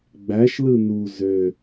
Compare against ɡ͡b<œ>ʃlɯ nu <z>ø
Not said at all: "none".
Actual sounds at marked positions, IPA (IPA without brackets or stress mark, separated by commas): æ, z